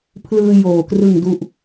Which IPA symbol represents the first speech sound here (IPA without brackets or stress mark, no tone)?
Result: pʰ